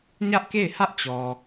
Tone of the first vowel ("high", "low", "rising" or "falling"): high